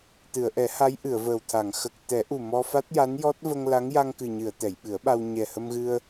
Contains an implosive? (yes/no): yes